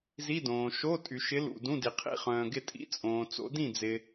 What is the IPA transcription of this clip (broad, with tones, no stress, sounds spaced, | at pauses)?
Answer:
z i˧˥˧ d õː˩ ʃ o˧˥˧ tʼ y˩ ʃ ɪ˨˦ l ṵ˧˩ d ũ˧˥˧ d i˩ qʰ ḭ˥˩ χ œ̃ː˩ ɡ ɪ˧˩ tʼ ḭ˧˥˧ t͡sʼ õː˩ t͡s o̰˨˦ d ĩ˥˩ d͡z ɪ˩